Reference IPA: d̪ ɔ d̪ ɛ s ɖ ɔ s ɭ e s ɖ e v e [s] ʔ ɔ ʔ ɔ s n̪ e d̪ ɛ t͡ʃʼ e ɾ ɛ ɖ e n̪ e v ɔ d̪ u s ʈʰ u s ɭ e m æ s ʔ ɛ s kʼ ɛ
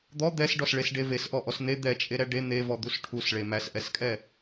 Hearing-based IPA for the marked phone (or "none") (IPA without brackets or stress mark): s